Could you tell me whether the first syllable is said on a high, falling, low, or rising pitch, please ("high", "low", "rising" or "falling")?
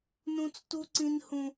high